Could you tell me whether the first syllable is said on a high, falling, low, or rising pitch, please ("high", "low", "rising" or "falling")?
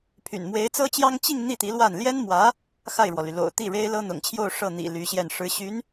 low